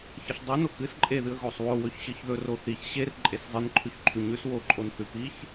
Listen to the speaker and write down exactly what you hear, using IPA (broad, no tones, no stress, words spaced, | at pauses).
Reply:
çɐɬdˤono kɨs ǃʼeðɨə̯ ɣosˤwo wɵçɕɨçðɵ roθiç ɕer ǃʼeszˤɨnǃʰʉç ǃʰʉɲʉs woǃʼonθʉ piç